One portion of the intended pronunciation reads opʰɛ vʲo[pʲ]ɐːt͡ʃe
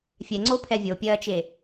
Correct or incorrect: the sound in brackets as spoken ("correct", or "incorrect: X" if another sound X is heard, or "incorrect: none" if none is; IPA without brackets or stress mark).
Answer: correct